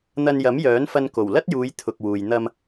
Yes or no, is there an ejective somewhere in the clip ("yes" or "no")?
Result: no